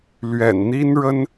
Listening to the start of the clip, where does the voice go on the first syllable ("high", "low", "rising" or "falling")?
low